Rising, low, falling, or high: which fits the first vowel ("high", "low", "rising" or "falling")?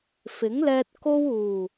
rising